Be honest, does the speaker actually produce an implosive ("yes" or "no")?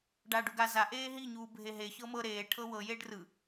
no